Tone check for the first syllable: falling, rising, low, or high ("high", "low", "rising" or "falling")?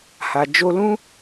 low